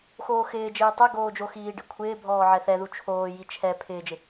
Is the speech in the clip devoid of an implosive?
yes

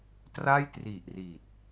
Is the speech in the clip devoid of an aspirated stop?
yes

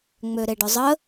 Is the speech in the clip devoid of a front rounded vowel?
no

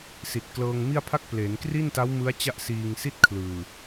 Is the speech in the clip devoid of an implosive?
yes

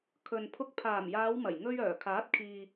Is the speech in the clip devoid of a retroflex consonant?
yes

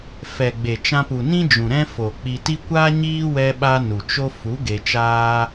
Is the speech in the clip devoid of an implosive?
no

